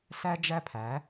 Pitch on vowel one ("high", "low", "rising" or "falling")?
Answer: high